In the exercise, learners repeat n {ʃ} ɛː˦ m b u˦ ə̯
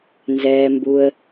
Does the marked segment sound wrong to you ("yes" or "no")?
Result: yes